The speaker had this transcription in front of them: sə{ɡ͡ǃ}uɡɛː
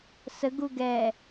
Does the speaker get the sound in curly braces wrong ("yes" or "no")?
yes